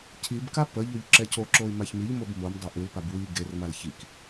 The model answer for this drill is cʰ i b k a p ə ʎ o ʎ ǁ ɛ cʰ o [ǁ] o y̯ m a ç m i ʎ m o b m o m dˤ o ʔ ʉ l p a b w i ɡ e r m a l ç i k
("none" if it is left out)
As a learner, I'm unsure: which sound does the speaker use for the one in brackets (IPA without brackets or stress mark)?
ǁ